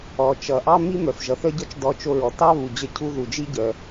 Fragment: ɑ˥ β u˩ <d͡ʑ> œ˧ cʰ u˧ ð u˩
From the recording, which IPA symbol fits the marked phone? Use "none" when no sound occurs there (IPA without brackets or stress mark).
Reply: d͡ʑ